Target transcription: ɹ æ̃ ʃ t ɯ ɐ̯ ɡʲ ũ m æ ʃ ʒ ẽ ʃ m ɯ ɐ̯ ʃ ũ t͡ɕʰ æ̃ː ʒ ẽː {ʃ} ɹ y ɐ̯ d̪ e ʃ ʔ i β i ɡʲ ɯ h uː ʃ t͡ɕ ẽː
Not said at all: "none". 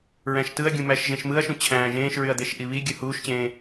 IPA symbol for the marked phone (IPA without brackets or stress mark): ʃ